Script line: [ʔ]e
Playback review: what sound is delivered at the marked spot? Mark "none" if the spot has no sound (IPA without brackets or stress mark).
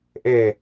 ʔ